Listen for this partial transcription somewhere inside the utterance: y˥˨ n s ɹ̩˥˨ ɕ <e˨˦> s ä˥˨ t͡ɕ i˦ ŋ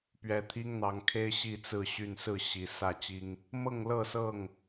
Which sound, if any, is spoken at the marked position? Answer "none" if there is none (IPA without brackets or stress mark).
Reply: i˨˦